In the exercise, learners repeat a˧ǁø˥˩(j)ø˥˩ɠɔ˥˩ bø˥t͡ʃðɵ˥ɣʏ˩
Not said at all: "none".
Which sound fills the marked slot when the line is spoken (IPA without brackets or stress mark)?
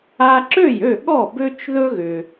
j